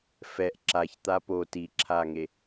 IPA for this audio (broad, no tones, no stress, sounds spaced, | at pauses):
f ɛ ʔ ǁ a ç t̪ a p o t i ǁʰ a ŋ e